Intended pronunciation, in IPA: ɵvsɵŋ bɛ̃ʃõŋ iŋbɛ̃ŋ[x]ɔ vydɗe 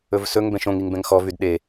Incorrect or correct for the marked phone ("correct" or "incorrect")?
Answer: correct